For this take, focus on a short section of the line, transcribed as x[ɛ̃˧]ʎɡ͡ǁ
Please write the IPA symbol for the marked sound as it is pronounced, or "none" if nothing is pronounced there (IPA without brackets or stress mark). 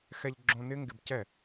ɛ˧